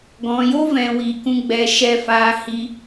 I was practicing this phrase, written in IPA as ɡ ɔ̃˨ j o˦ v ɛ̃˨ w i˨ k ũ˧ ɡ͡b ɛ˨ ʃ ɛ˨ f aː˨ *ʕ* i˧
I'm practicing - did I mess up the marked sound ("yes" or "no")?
yes